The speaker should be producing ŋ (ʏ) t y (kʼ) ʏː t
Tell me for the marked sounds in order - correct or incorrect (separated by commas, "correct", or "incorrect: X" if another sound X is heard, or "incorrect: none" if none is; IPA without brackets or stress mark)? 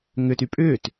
correct, incorrect: pʼ